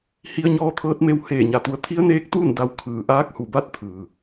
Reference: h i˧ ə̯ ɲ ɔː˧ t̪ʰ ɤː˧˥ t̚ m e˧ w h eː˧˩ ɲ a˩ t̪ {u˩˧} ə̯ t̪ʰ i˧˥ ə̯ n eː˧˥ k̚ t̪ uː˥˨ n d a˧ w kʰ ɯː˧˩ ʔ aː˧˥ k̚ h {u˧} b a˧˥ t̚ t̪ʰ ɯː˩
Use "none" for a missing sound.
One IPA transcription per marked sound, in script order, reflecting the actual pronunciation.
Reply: u˩˧, u˧˩

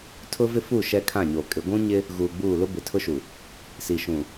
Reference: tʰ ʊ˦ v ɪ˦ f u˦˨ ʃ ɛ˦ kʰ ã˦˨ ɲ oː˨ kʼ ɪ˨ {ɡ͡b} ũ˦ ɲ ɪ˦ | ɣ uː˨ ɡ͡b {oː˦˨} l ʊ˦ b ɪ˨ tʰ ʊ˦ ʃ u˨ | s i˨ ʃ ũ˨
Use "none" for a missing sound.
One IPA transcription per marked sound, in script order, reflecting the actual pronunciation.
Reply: ɡʷ, uː˦˨

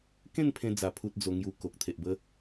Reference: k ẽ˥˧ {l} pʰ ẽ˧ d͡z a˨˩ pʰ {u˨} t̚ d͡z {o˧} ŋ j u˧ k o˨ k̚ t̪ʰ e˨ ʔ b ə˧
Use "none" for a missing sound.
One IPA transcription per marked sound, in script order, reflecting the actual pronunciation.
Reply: n, u˨, o˧

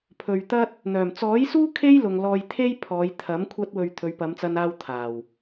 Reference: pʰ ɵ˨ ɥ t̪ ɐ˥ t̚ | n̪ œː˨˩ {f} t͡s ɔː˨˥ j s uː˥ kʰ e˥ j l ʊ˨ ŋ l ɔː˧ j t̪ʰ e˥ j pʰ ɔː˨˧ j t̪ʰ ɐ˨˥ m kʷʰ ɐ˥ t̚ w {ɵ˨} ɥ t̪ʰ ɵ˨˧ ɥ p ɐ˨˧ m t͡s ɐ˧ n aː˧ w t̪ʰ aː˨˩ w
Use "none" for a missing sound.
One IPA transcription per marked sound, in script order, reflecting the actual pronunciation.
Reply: m, ɵ˧

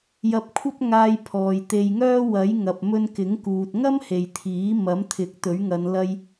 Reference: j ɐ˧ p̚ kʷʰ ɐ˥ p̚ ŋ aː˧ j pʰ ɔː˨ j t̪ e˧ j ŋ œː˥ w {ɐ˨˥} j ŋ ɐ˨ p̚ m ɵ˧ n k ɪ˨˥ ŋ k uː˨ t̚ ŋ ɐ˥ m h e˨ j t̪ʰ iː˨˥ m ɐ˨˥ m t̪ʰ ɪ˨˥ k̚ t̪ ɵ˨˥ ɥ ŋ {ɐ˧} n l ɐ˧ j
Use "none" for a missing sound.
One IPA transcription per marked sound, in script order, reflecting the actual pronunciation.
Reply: ɐ˨˥, ɐ˨˧

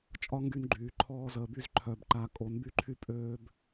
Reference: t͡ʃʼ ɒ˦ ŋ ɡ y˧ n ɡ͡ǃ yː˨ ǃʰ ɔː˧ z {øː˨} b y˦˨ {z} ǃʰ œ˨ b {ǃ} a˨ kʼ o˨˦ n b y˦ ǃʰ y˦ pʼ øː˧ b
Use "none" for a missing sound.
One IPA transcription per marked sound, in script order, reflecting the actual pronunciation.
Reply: əː˨, z, ǃ

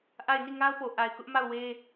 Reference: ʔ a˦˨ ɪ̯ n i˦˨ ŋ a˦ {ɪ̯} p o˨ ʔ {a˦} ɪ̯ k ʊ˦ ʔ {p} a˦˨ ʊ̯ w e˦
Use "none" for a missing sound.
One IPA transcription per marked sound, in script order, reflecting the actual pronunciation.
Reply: ʊ̯, a˨, m

